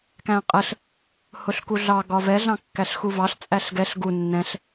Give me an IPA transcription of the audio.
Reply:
k æ̃ qʼ ə ɬ | h ʊ ɬ k u ɮ ɑ ɡ ɒ v ɛ ɮ ɑ̃ kː æ ɬ x u v ɑ ɬ t͡sʼ æ ɬ ɡ ɛ ɬ ɡ u nː ɛ̃ ɬ

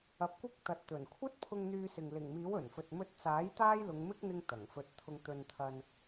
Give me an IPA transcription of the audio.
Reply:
ɐ˨˥ p̚ kʷ ɪ˥ k̚ t̪ ɐ˨ t̚ t̪ ɵ˨˩ n kʷʰ ɐ˥ t̚ pʰ ʊ˧ ŋ n̪ yː˧ s ɪ˨ ŋ l ɪ˨˩ ŋ m iː˨˥ w ɵ˨˩ n f ɵ˨ t̚ m ɵ˧ t̚ t͡s aː˨˥ j t̪ aː˥ j l ʊ˨˧ ŋ m ɪ˥ k̚ n̪ ɪ˥ ŋ t̪ ɐ˨˩ ŋ f ɵ˧ t̚ t̪ʰ ʊ˧ ŋ t̪ ɵ˧ n t̪ʰ ɐ˧ n

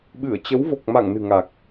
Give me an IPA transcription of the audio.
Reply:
ɓ ɨ˧˩ ə̯ t͡ɕ ə˨˦ w v o˨˩ k̚ m a˧˩ ŋ n ɨ̤˨˩ ŋ a˨˩ k̚

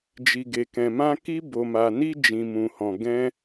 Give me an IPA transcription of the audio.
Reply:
d͡ʒ i˨ ɡ e˨ k ɛ̃˨ m ã˧ k i˧ b o˨ m a˨ n i˧ d͡ʒ ĩ˨ m ũ˨ h ɔ̃˨ ɡ ɛ̃˧

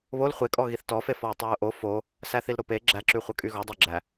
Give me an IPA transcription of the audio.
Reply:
β o l χʷ e kʼ ɔ ɣ i θ t ɔ f e f ɔ ɪ̯ tˤ æ ʊ̯ ʔ o f o | s æ θ i l ɾ o p e ɡ͡ǁ æ ǁ y χʷ ɐ kʼ y ɣ ɔ dˤ e ɡ͡ǁ æ

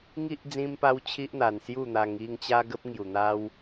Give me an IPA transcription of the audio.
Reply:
ŋ i˦ ʔ d͡z ĩ˦ m p a˦ w t͡ɕʰ i˦ ʔ n̪ a˨˩ n s j u˥˧ n̪ a˧ ŋ i˥˧ ŋ t͡ɕ a˦ ɡ ə˦ p̚ ŋ j u˨˩ n̪ a˦ w

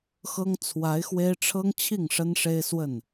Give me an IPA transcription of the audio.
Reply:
x ɤ˥ ŋ t͡sʰ w a˧˥ ɪ̯ x w e˥ ɪ̯ ʈ͡ʂʰ ɤ˥ ŋ t͡ɕʰ i˥˩ ŋ ʂ ə˥ n ʂ e˥ ɪ̯ s w ə˥˩ n

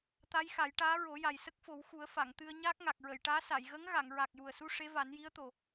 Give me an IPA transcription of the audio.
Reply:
t̪ a˧˥ j x a˨˩˦ j ʈ aː˧˥ ɹ o˨˩˦ j a˨˩ j s ə˦˥ k̚ f o˨˩˦ w x u˨˩˦ ə̯ f a˨˩˨ ŋ t̪ ɨ˧ ə̯ ɲ aː˦˥ k̚ ŋ a˨˩ k̚ ɹ ə˨˩˨ j ʈ aː˧˥ s a˨˩˨ j ɣ ə˧˥ ŋ ɣ a˨˩˨ ŋ ɹ a˨˩ k̚ j u˨˩ ə̯ s u˧ ʂ e˧˥ v a˨˩˦ n j i˧˥ ə̯ t̪ o˨˩

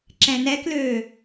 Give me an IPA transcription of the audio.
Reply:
ǁ ɛ̃ n ɛ k l øː

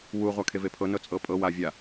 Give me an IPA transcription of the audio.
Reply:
w u ʁʷ a kʰ e v e pʰ ɤ n ɤ t͡sʼ ɤ pʼ ɤ w a vʲ a

